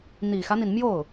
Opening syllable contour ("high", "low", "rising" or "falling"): low